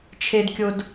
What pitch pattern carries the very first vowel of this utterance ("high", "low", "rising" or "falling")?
low